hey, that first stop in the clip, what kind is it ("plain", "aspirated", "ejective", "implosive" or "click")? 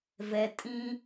ejective